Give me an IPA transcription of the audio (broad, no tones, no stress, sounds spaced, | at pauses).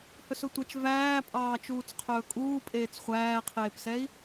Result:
h ɵ s ɵ tʷ ɛ t͡ʃ v æː pʼ ɑː t͡ʃ uː t͡s qʰ ɵː kʼ uː pʼ eː t͡s χʷ æː qʰ eː p s ɛ i̯